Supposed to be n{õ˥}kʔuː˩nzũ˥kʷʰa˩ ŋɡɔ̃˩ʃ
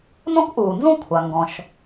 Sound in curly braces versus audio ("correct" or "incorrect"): correct